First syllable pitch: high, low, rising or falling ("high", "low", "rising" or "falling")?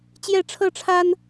falling